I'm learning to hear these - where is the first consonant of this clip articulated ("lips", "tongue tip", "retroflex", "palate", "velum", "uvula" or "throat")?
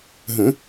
throat